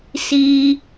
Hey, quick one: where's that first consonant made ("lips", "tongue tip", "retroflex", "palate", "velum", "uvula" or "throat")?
tongue tip